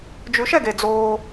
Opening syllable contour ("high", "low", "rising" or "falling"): rising